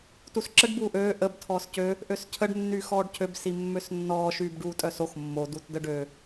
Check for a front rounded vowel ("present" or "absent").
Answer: present